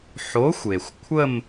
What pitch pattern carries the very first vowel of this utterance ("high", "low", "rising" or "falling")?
rising